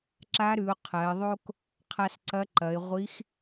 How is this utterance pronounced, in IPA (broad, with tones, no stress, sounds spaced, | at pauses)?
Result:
ǁ a˧˥ ɾ ʉ˩˧ ʊ̯ qʰ ɐ˩˧ ɪ̯ ðˤ o˥ k | qʰ a˧ s ǀ ɐ˧˥ ǃ ɐ˩˧ ɪ̯ ʁʷ i˧˥ x